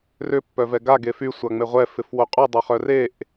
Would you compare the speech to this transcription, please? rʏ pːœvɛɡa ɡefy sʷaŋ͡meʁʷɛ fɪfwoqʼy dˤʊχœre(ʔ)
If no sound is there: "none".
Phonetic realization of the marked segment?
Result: ʔ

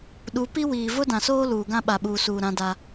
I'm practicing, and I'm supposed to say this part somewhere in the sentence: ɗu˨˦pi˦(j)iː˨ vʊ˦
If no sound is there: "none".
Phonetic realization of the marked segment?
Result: w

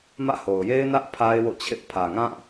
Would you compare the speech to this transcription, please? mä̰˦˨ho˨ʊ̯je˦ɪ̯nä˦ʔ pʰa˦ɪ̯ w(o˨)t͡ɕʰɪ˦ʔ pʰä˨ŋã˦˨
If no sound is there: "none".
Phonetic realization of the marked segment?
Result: o̰˦˨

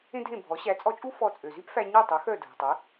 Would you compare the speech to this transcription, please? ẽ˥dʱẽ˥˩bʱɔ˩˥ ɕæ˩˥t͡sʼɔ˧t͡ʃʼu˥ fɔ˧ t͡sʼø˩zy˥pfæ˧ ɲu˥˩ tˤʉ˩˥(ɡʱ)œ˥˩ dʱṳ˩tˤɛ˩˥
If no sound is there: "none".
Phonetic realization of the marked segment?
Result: x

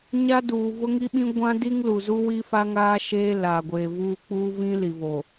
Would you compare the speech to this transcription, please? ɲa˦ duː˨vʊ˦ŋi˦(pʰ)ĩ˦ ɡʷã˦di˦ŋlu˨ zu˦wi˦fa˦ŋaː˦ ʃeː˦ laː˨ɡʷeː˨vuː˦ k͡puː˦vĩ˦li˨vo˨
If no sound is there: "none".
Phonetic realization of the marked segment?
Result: ɓ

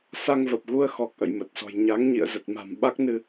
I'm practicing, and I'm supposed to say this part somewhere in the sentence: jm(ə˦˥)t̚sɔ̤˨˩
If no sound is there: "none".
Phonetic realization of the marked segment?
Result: ə˨˩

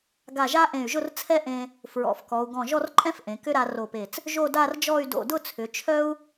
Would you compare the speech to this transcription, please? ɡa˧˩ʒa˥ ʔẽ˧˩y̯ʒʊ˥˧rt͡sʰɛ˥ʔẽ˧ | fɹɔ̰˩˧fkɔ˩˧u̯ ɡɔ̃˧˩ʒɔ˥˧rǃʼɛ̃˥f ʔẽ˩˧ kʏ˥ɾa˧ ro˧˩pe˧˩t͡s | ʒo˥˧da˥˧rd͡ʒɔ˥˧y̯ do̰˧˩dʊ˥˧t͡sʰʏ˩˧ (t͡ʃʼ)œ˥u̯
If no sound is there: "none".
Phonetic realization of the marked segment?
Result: t͡ʃʰ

